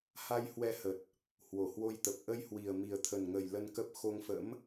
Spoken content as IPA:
h a˧ j h w ɛ˧ h ə˨˩ t̚ | h w o˧˩ h w o˧ j t̪ ə˨˩ p̚ ʔ ə˧ j h w i˨˩ ə̯ m i˨˩ ə̯ t̪ʰ ə˨˩ n ŋ ə˨˩ j l ə˧ n k ə˦˥ p̚ x o˧ ŋ f ə̰˧˥ m

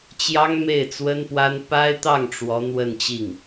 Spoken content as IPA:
t͡ɕ j ɑ˥ ŋ m e˥˩ ɪ̯ t͡s w ə˥ n p w a˥ n p a˥ ɪ̯ t̪ ɑ˥˩ ŋ ʈ͡ʂ w ɔ˧˥ n̪ w ə˥˧ n t͡ɕ i˥˩ ŋ

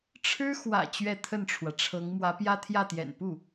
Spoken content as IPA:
ʈ͡ʂʰ ɻ̩˥ x w ä̰˨˩ t͡ɕ ɥ ɛ˥˧ t̪ʰ ə˥˩ n ʈ͡ʂʰ w ä˩ ʈ͡ʂʰ ɤ˧˥ ŋ m w ä˧˥ p j ä˥ t̪ʰ j ä˥˩ t̪ j ɛ̰˨˩ n p u˥˩

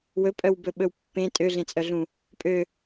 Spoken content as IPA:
w ɵ pʼ œ w b ɵ ɓ ɵ w pː ẽ tʼ ø ɮ ẽ t͡sʼ œ ɮ ũ | pʼ ø

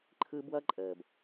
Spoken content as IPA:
ǃʰ ɯ˦ b w ʌ˦ ǃʼ əː˨ b

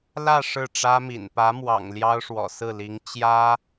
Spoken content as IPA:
l ä˥˧ ʂ ɻ̩˥˩ ʈ͡ʂ ä˥ m ḭ˨˩ n p ä˧˥ m w ɑ̰˨˩ ŋ l j ɑ˥ ʊ̯ ʂ w ɔ̰˨˩ s ɹ̩˥˩ l i˧˥ ŋ t͡ɕ j ä˥

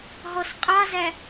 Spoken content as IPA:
ɦ ɔ s qʼ ɑ z æ

